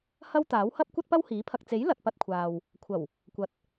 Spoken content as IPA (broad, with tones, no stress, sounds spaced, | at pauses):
h ɐ˥ w t̪ aː˨˥ w h ɐ˥ p̚ kʷ ɐ˥ t̚ p ɐ˥ w h iː˨˥ pʰ ɐ˧ k̚ t͡s e˨˥ j l ɐ˨ t̚ p ɐ˧ t̚ kʷʰ aː˨ w | kʷʰ ɐ˨˩ w | kʷ ɐ˨ t̚